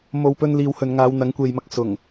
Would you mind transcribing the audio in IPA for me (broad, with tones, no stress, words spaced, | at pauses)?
mo˨wpɵ˧n liː˨whɵ˨n ŋaː˨˧wn̪ɐ˨˥ŋkʷe˨jmɐ˨k̚ sʊ˨˩ŋ